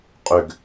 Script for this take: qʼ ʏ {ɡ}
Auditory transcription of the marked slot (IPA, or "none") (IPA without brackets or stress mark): ɡ